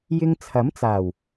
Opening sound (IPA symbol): j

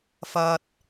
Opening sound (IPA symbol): f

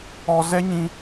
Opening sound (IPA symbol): ɔ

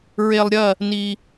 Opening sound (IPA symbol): ɹ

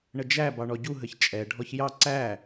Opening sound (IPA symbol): ɳ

